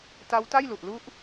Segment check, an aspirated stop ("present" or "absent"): absent